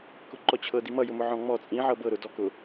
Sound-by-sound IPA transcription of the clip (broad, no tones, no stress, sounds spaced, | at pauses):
k ʊ ǃ ɔ t͡ɕʰ ɤ d i m ʌ j ʊ m ʊ ʕ ɔ̃ ŋ͡m ɔ t͡sʼ ĩ ʕ ɤ b ɤ ɾ ʊ d ɔ k ʊ